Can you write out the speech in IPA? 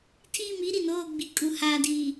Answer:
tʰ iː˦˨ m i˦ ɾ i˨ n oː˦˨ ɡ͡b i˨ kʼ u˨ h aː˨ d iː˨

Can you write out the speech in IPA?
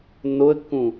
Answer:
nː o ə̯ kː ũ

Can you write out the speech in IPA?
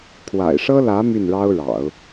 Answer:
kʰ w a̰˨˩ ɪ̯ ʂ ɤ˥ l ä˧˥ m y˥˩ n ɻ ɑ˥ ʊ̯ ɻ ɑ̰˨˩˦ ʊ̯

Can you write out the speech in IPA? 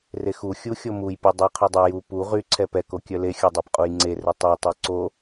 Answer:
r e x u xʲ u xʲ o m u j pʲ u dˤ ɛ qʰ y dˤ ɛ j u p u ʁ y ǀʰ ɛ p ɛ k o kʲ œ l e xʲ o dˤ œ p qʼ u j ŋ͡ǀ e r ɛ tˤ œ tˤ œ ǀ o

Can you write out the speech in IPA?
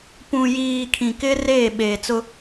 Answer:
p ũ˨ j iː˨ kʰ ĩ˨ k ɪ˦ r eː˦˨ ɓ eː˨ t͡s ʊ˦

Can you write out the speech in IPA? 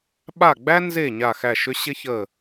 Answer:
ɓ a˦˨ ɡ͡b æ˥ n z e˦˨ ɲ a˦˨ x æ˦˨ ʃ ʏ˥ ɕ ɪ˥ ç ə˦˨

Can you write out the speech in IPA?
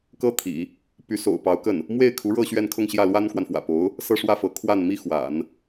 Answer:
k ɤ˥ t̪ʰ ḭ˨˩˦ | p y˧˥ s o̰˨˩ ʊ̯ p ɑ˧˥ ʊ̯ k ə˥˩ n | m w e˥˩ ɪ̯ kʰ u˧˥ ɻ ɤ˥˧ ɕ ɥ ɛ˥˧ n kʰ ʊ˥˧ ŋ ɕ j ä˥˩ l w a˥ n k w a˨ n f w ä̰˨˩ p o˧˥ ʊ̯ | s ɤ˥˧ ʂ w ä˥˩ f ɤ˧˥ kʰ w a˥˩ n m i˥ x w a̰˨˩˦ n

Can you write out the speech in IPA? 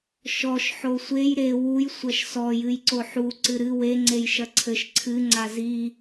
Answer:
ʃ ɔ ʃ ħ o sʷ e j ɾ e w u j sʷ ɐ ʃ s ɔ j ɨ j ǀ o ħ u ǀ ɨ ɾ ɨ w e ŋ͡ǀ e j ʃ ɐ ǀʰ ɘ ʃ ǀʰ ɨ ŋ͡ǀ a z i

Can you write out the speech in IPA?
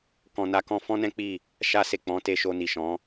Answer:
k ɔ̃˨ n a˧ k ɔ̃˧ f ɔ̃˦ n ɛ̃˦ k͡p i˦˨ | ʃ a˧ s e˨ k͡p ɔ̃˨˦ t e˧ ʃ o˧ n i˨ ʃ ɔ̃˨˦

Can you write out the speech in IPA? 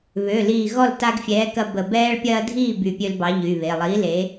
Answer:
β ø˩˧˩ l iː˧˩ ɣ ɔ˥˨ l t a˦ ɡ fʲ ɛː˨˥ k ɐ˦ b ə˧˩ b ɛː˦ ɭ pʲ ɐː˦ dʱ iː˥˨ b y˧˩ pʲ ø˦ l b ɑ˨˥ ʎ y˩˧˩ β e˩˧˩ lˠ iː˨˥ l e˨˥

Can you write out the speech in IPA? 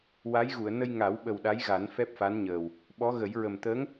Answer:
w a˧˥ j ɣ u˨˩˨ ə̯ n ə˧ j ŋ a˨˩˦ w ɓ ə˨˩ w ɗ a˧˥ j ɣ a˨˩˦ n f ɛ˦˥ p̚ f a˧˥ n ɲ əː˨˩ w | ɓ ɔ˧˥ ɣ ə˨˩˦ j ɹ ə˨˩ m t̪ əː˧˥ ŋ

